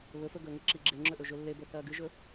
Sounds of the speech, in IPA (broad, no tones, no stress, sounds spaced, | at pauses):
β ɵ f ɵ ɡ ɵː ŋ e ǁ i ɡ͡ǁ e ŋ͡ǁ ɵ ʔ ɵ ʒ ɵ lː e b ɵ θ ɐː ɡ ɨ ʒ ɵ